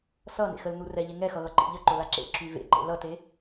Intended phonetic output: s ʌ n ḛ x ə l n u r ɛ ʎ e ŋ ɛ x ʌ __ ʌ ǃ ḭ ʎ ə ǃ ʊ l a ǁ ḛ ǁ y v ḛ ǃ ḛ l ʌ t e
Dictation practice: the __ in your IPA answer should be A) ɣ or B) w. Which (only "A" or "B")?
A